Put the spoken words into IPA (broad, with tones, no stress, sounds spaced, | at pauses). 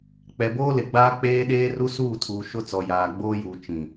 k͡p ɛ˨ b oː˦ l ɪ˨ ɡ͡b aː˦ k͡p eː˦ ɗ eː˦ r u˦ s uː˦˨ tʰ uː˨ ʃ ʊ˦ t͡s ɔ˨ j aː˨ ɡ͡b oː˦ j uː˨ t͡ʃ ĩ˨